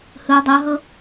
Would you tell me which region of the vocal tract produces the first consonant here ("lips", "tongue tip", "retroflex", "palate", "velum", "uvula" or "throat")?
throat